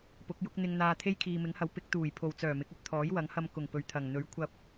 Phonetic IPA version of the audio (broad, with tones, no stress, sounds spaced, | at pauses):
p ʊ˨˥ k̚ j ʊ˥ k̚ n̪ ɪ˧ ŋ n̪ aː˧ t̪ʰ e˥ j kʰ iː˨ m ɪ˨˥ ŋ h ɐ˨˥ w p ɪ˨˥ k̚ t̪ uː˨˩ j pʰ o˨ w t͡s œː˨˩ m ɪ˨˥ k̚ ɵ˧ t̚ t̪ʰ ɔː˨˥ j w ɐ˨˥ ŋ h ɐ˧ m k ʊ˨˩ ŋ p ɵ˨ ɥ t̪ʰ ɐ˨˩ ŋ n̪ ɵ˨˥ ɥ kʷʰ ɐ˧ p̚